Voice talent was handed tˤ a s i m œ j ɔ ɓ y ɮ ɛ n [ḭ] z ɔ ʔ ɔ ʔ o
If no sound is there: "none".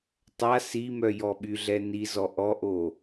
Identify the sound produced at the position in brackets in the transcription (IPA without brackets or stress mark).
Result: i